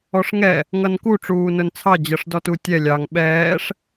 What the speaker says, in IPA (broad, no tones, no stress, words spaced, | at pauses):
ɔʂŋɛ | ŋʌnku ʈ͡ʂuːnʊnt͡sʰɑ d͡ʑʌʂdɔtutʲɛ lʲɑŋ ɓɛːʂ